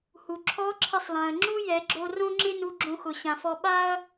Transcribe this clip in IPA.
h u˩ ǁʰ ɔ˧˥ ǁʰ ɪ˧ sˤ l ã˩ ɐ̯ ŋ͡ǁ u˥ j ɛ˩˧ ɡ͡ǁ o˧ r õ˥ ŋ͡ǁ ɪ˥ n u˧ ɡ͡ǁ õ˧ x ʊ˩ ɕ ã˩ f ɔ˧ ɓ a˥ ɐ̯

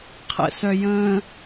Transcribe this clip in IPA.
qʰ ə̰ s œ j ə̃ː

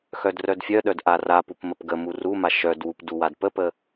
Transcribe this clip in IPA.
x œ d r œ d fʲ œ ɗ œ d ʔ a r a p u p m ə p ɡ ə m u r u m a ʃ œ d w u p d u w a d p ə p ə

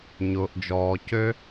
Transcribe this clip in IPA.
ɲ ʊː˩ ʔ d͡ʒ ɔː˩ c ø˧

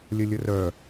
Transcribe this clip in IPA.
lʲ ə lʲ ə r œ

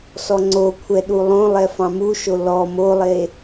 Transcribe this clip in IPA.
s ɔ ŋ͡ǀ o kʷʰ ɛ ɗ u lˠ õ lˠ ɛ f ɑ̃ m u ʃ o l ɔ m o lˠ e

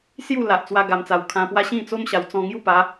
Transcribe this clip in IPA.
s j u˥˧ l a˨ ʔ t͡s w a˧ ɡ a˨˩ m t͡s a˨˩ w kʰ ã˧ p w a˦ ɕ ĩ˥˧ t͡s o˦ m ɕ a˨˩ w t͡s ɔ̃˧ ŋ j u˥˧ p a˨˦

